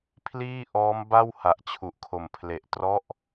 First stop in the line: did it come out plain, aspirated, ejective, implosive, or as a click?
aspirated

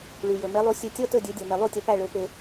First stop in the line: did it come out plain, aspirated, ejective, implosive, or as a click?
plain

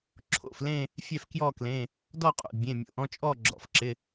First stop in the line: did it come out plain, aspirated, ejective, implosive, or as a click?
click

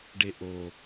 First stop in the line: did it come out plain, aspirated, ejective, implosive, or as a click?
plain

